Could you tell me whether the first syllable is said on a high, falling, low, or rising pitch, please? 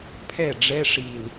falling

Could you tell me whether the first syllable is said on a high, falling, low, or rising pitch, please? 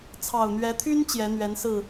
low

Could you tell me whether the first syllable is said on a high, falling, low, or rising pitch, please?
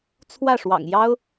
falling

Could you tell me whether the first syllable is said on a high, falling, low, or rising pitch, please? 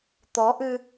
rising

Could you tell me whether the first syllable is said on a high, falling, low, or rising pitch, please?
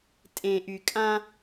low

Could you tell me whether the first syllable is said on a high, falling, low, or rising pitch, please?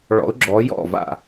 rising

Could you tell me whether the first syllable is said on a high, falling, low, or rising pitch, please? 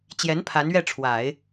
rising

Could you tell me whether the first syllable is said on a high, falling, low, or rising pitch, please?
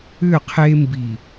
falling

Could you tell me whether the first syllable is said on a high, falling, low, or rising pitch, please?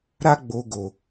high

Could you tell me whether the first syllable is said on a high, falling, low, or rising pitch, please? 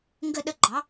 falling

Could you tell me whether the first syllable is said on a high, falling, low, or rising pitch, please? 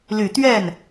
low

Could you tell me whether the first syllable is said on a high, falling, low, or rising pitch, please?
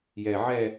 low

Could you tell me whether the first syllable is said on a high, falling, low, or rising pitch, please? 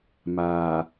low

